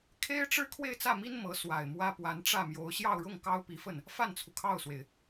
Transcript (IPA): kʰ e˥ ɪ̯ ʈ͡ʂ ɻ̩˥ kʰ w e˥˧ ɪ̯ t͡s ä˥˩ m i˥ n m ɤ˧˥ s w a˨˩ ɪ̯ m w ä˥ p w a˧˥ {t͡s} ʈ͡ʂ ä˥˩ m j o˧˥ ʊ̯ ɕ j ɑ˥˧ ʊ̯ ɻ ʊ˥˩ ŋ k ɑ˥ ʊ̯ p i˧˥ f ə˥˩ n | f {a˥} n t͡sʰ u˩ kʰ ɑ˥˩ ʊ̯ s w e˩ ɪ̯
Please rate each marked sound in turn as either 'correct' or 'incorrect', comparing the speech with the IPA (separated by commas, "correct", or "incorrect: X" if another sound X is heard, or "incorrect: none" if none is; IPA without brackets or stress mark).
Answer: incorrect: n, incorrect: a˥˩